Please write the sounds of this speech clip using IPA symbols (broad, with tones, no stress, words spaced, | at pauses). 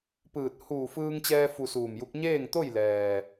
pɯː˧˩t̚ huː˧˩fɯː˧ŋt͡ɕɛː˧ fu˧suː˧˩mju˧˥k̚ ɲeː˥˨ŋt̪o˥˨jlɛː˩